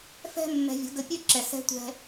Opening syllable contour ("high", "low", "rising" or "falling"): high